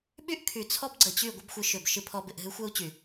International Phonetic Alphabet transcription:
ɓ y˦ ʔ kʰ y˨ t͡sʰ ɔ˦ b ɡ͡ǀ ə˨ t͡ɕ y˦˨ ɡʷ ɪ˦ b xʷ ɨ˨˦ ʃ ʏ˨ b ʃ ɨ˦ pʰ ɔ˦ b ɪ˧ ʔ ɦ ɨ˦ xʷ ɛ˦ u̯ t͡ɕ y˨

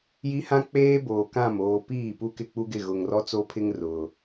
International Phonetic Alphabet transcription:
j i˦ h ã˦ k͡p eː˦ b oː˨ k ã˦˨ m oː˨ p iː˦˨ p u˦ k ɪ˦˨ k͡p u˦ ɡ ɪ˦˨ ɣ ʊ˨ ŋ r ɔ˦ t͡s o˦ pʰ ɪ˦ ŋ r ʊ˨

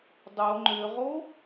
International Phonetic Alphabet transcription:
dˤ o ŋ͡ǃ ø ʁ o

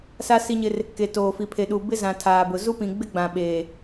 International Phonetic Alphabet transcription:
s a˦ s i˦ ɲ ɪ˦ r | k e˨ t oː˨ f i˨ pʰ e˨ ɗ u˨ b ɪ˦ z ã˨ tʰ aː˨ b ʊ˨ z u˦ p ĩ˨ ɡ͡b ɪ˦ ɡ͡b ã˨ ɓ eː˨

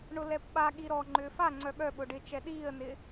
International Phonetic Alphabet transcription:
ɳ ʊ l ɛ p ɓ a ɠ i ɾ ɔ ŋ͡ǃ ʏː f a ŋ͡ǀ œ ɠ œ ɓ ʊ ɖ ɪ t͡ʃ ɛ ɗ iː ə̯ n ɪ

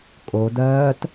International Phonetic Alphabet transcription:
kʼ o d ɜː t

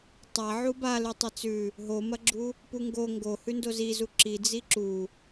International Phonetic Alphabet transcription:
tˤ a ʕ u b a l ʉ tˤ ɐ t͡s ʉ | ɦ o m ɐ ɡ͡ǁ u | p u ŋ ɡ o ŋ ɡ o h ʉ n d o z i z u ǁ i d͡z i ǁ u

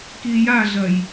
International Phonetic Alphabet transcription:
k i j a ɮ ɐ j

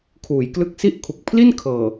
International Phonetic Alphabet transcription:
kʰ uː˩˦ j k l ɯ˦˥ k̚ s i˥˩ ʔ kʰ u˨˩ k̚ pʰ l i˥˩ n kʰ ɤː˨˩

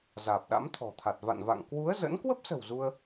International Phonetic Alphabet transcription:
z aː˨˩ p̚ ɗ a̰˧˥ m t̪ʰ ɔ̤˨˩ t̪ʰ a˨˩ t̚ v a̰˧˨ n v a̰˧˨ ŋ k w u˨˦ ə̯ z ə̰˧˥ n k w ə˦˥ p̚ s ə̤˨˩ w z u˧ ə̯

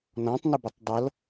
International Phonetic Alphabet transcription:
n ɔ̃ tˤ n ə b ə tˤ dˤ ʌ l

